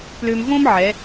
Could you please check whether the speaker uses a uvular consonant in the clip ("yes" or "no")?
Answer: no